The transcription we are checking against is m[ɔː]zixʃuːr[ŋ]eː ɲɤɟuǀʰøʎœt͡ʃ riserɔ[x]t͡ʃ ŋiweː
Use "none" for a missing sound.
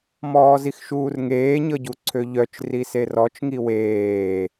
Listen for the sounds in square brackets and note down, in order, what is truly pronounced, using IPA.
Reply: ɔː, ŋ, none

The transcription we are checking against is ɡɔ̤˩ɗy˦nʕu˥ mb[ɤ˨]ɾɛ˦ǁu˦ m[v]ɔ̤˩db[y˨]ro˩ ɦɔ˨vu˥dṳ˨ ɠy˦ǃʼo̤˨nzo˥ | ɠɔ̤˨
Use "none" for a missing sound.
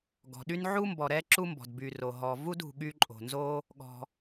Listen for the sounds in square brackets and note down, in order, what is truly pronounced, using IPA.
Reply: ɔ˨, b, y˨

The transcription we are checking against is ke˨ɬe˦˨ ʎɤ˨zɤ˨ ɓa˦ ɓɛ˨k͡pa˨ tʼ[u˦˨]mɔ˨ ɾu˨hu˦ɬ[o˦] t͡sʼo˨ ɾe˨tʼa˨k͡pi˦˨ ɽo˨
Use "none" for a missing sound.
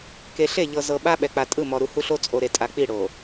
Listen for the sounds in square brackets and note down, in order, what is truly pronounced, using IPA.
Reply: ɯ˦˨, o˦

